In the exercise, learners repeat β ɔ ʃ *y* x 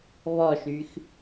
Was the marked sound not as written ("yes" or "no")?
no